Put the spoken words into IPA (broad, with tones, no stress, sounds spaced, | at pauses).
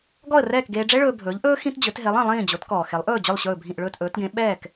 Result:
ɡ ɔ˥˩ ə̯ r ɛː˥˩ k ɡ eː˧ ɖ͡ʐ ɛ˥ ɭ ɵː˧ bʱ ɵː˩˥ ʎ ʔ ɵː˥ x ĩ˥ t d͡ʑ ɵ˩˥ t ɦ e˩˥ lˠ ĩ˩ lˠ ĩː˥˩ d͡ʑ o˩˥ t k ɔː˩ x e˩˥ lˠ ʔ ɵː˥˩ d͡ʑ ɵ˥˩ lˠ ɕ ɵː˥˩ bʱ ĩ˥˩ ʔ ɭ ɵː˥˩ t ʔ ɵː˩˥ t ɡ ẽ˩˥ ɓ ɛː˥˩ k